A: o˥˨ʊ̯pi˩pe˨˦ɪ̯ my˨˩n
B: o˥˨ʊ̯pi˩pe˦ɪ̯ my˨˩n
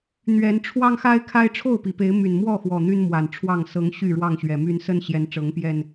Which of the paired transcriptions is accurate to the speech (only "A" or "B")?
A